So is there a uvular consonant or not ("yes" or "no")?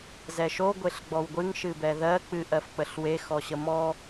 no